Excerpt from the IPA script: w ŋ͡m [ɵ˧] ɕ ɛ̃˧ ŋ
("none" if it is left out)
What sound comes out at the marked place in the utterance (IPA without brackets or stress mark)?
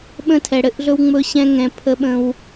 ɵ˧